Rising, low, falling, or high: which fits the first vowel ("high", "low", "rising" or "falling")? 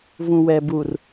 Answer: low